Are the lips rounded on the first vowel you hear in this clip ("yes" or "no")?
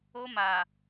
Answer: yes